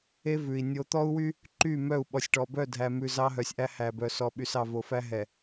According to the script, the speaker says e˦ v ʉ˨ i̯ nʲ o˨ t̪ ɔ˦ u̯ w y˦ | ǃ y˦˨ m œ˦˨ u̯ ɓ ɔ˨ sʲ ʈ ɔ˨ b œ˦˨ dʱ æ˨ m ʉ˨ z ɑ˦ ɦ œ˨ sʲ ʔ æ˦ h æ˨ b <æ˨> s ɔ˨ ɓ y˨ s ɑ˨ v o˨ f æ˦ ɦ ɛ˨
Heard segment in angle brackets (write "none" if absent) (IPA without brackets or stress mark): œ˨